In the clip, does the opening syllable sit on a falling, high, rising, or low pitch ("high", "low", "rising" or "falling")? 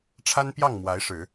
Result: high